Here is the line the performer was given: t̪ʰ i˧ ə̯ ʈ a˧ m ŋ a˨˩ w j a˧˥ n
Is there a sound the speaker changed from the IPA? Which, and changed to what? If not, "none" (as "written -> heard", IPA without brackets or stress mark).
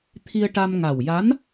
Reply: none